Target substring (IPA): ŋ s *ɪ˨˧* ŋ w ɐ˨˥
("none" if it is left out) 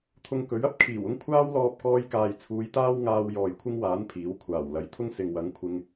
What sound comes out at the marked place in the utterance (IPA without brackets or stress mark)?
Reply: ɪ˨